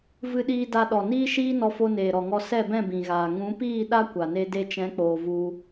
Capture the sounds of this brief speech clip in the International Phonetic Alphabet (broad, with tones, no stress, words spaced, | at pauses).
vɨ˧ɗiː˧ da˧ɗɔ˨ niː˦ʃiː˦ nɔ˧fo˧ neː˨ɾɔ˨ŋɔ˧ sɛ˦˨bɛ̃˦˨bĩ˨ɣaː˨ ŋũ˨˦piː˦˨ ɗa˦ kʷa˨ne˧ de˧t͡ʃɛ̃˨˦k͡poː˨ vu˧